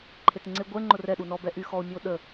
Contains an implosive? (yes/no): yes